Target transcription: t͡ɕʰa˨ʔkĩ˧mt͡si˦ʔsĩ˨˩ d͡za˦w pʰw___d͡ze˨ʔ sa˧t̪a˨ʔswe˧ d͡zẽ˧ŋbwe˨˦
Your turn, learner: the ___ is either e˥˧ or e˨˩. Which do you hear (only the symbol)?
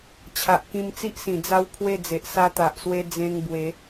e˥˧